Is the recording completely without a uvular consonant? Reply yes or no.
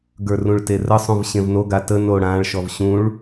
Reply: yes